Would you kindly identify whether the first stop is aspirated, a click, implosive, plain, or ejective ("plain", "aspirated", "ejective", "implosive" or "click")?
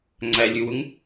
click